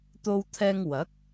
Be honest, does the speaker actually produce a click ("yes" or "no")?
no